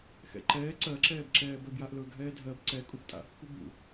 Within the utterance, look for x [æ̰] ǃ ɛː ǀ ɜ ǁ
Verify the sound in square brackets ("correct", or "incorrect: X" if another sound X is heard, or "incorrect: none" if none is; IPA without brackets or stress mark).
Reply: incorrect: ɛ̰